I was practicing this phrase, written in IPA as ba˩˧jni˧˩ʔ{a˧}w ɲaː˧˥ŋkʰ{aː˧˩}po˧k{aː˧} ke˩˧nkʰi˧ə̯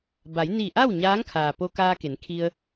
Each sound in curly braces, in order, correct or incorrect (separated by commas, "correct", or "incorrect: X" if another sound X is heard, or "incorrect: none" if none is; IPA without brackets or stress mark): incorrect: a˥˨, incorrect: aː˩, correct